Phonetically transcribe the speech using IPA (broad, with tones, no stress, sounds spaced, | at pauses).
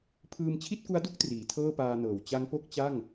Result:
pʰ ɯː˧ m t͡ɕʰ i˥˩ t̚ k u˦˥ a̯ d u˥˩ k̚ t r iː˩˦ tʰ ɤː˥˩ p aː˧ n ɤː˨˩ w t͡ɕ a˦˥ ŋ p o˥˩ k̚ t͡ɕ a˥˩ ŋ